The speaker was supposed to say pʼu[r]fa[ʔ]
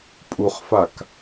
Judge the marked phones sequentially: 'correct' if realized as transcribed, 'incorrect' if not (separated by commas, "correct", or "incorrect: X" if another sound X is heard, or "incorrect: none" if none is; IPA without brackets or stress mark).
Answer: incorrect: χ, incorrect: k